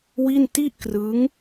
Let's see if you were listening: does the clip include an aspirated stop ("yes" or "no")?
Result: no